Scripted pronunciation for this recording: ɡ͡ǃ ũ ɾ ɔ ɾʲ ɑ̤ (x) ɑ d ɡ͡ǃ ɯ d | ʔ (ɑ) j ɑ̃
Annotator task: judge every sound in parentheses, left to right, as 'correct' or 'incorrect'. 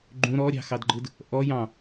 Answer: correct, incorrect: ɔ

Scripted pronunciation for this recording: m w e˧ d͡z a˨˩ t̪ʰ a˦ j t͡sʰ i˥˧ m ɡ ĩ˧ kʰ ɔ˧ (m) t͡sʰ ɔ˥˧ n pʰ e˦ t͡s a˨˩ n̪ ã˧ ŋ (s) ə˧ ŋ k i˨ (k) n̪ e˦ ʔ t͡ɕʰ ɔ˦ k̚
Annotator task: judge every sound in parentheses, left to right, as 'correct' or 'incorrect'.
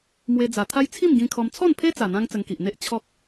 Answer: correct, incorrect: t͡s, incorrect: ʔ

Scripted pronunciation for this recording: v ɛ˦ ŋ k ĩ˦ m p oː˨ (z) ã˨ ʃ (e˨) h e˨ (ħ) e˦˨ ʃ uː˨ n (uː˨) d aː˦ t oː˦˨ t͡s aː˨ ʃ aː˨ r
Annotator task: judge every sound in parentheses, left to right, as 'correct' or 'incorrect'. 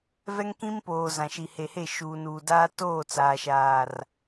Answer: correct, incorrect: i˨, incorrect: h, correct

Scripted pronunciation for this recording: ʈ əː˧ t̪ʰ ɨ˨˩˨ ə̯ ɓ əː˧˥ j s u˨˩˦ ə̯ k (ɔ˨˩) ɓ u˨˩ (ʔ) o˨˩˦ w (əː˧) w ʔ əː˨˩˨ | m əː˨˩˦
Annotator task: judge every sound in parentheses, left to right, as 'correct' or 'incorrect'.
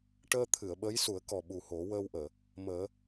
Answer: correct, incorrect: h, correct

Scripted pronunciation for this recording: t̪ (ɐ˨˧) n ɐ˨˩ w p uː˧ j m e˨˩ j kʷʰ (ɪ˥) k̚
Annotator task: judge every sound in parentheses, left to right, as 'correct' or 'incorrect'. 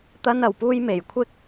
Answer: incorrect: ɐ˧, correct

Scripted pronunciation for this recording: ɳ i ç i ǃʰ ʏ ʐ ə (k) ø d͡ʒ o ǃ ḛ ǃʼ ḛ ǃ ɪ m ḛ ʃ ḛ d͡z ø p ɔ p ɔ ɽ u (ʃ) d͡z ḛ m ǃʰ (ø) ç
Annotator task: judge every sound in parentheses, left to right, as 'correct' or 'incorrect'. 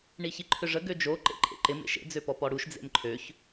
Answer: incorrect: ɡ, correct, correct

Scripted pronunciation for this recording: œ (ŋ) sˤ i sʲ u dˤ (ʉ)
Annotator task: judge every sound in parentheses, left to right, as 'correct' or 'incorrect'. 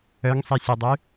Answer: correct, correct

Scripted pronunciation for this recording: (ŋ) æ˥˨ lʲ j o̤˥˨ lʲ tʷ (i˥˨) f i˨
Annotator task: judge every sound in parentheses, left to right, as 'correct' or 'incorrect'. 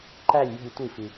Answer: incorrect: ǃ, correct

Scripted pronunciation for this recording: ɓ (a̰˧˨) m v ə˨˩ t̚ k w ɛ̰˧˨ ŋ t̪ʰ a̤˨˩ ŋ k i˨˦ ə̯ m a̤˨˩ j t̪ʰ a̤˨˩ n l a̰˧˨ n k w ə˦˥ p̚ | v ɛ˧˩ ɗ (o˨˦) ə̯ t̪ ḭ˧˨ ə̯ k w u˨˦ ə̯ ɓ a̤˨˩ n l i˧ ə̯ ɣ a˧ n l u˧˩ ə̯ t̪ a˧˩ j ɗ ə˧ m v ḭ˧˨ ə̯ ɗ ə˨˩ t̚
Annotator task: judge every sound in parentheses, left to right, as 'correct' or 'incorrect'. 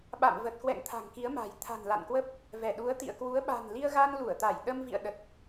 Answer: correct, incorrect: u˨˦

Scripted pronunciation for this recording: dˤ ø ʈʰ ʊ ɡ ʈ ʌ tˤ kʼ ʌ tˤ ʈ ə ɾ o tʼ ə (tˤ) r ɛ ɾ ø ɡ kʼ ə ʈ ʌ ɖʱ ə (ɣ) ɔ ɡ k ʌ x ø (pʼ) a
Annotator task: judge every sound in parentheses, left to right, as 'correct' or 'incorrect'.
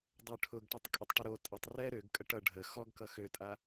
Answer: correct, incorrect: x, incorrect: tʼ

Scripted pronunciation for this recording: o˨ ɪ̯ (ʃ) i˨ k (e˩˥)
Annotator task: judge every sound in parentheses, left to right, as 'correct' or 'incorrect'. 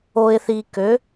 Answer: incorrect: θ, incorrect: ø˩˥

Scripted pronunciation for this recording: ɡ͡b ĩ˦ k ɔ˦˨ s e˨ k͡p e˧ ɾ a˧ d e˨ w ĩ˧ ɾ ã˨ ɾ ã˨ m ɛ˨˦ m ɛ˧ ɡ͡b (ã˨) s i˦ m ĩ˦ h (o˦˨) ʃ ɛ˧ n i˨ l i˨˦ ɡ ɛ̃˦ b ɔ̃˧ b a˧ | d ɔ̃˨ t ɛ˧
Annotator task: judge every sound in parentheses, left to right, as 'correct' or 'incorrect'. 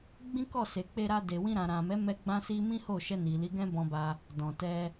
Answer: incorrect: ã˦, correct

